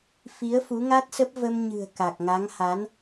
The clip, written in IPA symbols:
f i˨˦ ə̯ f u˨˦ ŋ a˦˥ t̚ s ə˦˥ p̚ v ə˧ m ɲ ɨ̤˨˩ ə̯ k a˨˩ k̚ ŋ a˨˦ ŋ h a˨˦ n

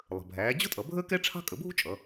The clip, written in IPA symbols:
lˠ ə̤˩ bʱ æː˩˧ d͡ʑ ʊ˥ tʼ ʌ˩˧ bʱ əː˥ k ɛ˥ ʈ͡ʂʰ ɑ̤˥ kʼ ə˩˧ bʱ ṳ˥ t͡ʃʼ ʌ˩˧

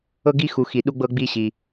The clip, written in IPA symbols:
ɤ˥ ɡ i˥ x u˧ x i˧ ɗ u˥ ɡ͡b ɤ˥ ɡ͡b i˥ ɕ i˧

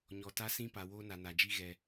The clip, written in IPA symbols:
ɲ ɔ˨ t a˦ s ĩ˦ p a˨ w oː˦ n a˨ n a˨ d͡ʒ i˦ ɣ ɛ˨

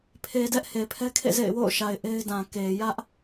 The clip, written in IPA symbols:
pʰ e˨ d ɛ˦ ʔ h e˨ pʰ ɛ˦ kʰ ḛ˦˨ z ḛ˦˨ ɪ̯ w o̰˦˨ ʊ̯ ʃ a˨ ɪ̯ ʔ e˦ ɪ̯ d ã˨ k e˨ j ä˦ ʔ

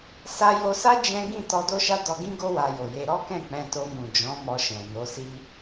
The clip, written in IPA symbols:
s a˧ j o˧ s a˦ d͡ʒ ɛ̃˦ ɡ ĩ˦˨ t ɔ˧ d o˦ ʃ a˦ d ɔ˧ ɡ ĩ˦ ɡ o˦ w a˧ j o˨ j e˧ ɾ ɔ˦ k ɛ̃˦˨ k͡p ɛ̃˧ t o˧ m ũ˨ d͡ʒ ɔ̃˨˦ m ɔ˧ ʃ ɛ̃˨ n o˨˦ s i˦

